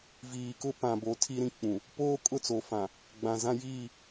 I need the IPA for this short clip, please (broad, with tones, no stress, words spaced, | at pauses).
viː˨kʊ˦ pã˨bo˨˦ tʰi˦ɾĩ˦k͡pũ˨ | poː˦kʼʊ˦˨t͡so˨fã˨ | ɡ͡bã˨zã˦ jiː˦˨